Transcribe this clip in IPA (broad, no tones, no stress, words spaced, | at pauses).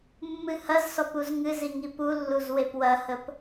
mːɨhɐzsɔp uzŋɨzi ŋipulːuz wepwɐhəp